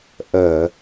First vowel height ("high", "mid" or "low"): mid